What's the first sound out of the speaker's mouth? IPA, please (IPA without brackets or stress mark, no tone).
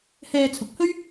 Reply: h